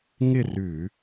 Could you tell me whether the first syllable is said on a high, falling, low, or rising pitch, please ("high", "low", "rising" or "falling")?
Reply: falling